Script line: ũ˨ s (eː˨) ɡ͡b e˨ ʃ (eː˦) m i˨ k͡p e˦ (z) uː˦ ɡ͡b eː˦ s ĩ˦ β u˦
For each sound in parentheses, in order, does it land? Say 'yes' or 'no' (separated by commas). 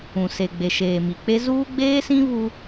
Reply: no, no, yes